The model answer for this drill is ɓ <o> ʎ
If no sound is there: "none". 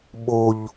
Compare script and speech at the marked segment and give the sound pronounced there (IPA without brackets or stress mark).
o